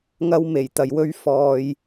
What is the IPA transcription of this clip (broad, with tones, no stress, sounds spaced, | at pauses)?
ŋ ɐ˧ w m e˨˩ j t̪ ɐ˨ j w ɵ˧ ɥ f ɔː˨ j